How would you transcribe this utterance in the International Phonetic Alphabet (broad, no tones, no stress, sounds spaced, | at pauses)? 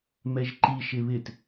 m ɛ ʒ ǃ i ʃ ɪ β ɪ t